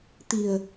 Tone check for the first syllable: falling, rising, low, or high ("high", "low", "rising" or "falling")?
low